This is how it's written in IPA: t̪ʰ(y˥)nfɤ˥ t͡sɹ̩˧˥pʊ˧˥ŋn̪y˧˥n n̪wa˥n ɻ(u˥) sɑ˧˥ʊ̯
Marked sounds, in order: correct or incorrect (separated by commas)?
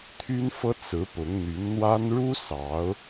correct, correct